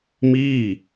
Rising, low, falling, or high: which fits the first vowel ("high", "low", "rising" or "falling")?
falling